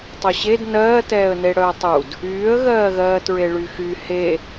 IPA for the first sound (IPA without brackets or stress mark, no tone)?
tˤ